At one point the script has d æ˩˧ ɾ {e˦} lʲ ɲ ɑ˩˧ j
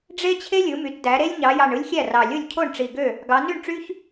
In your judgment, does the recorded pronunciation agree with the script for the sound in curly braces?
yes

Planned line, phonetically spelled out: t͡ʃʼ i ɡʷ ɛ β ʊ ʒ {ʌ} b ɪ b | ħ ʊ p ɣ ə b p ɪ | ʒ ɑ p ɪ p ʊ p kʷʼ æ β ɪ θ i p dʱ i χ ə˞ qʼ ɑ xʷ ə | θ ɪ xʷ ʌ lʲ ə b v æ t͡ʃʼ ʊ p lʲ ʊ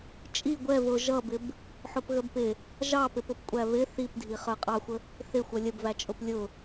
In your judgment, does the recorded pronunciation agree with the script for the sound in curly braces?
yes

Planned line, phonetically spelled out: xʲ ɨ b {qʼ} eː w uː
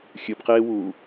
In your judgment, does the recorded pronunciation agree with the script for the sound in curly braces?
no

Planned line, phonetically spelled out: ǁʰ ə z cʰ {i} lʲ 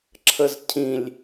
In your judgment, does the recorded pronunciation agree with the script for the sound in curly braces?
no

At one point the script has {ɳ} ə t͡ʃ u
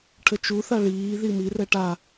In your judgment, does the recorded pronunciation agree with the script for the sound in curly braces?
no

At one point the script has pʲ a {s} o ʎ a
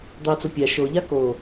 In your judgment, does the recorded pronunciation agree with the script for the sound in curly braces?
no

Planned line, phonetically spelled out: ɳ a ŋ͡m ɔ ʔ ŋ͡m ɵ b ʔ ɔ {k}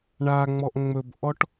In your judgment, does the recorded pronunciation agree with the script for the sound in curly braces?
no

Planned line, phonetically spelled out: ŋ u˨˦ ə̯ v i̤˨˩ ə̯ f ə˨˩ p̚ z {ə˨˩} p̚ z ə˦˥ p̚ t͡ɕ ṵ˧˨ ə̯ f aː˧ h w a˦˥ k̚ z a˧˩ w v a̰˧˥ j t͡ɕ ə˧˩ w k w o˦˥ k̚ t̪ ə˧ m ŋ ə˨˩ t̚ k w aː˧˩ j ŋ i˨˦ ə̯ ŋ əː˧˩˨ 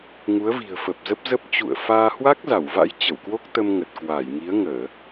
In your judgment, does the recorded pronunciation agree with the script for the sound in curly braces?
no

